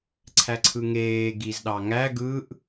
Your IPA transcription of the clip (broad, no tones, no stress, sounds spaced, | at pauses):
ǀʰ æ ǀʰ ɯ ŋ eː ɡ i z ɗ ɑ ŋ æ ɡ ɯ ʔ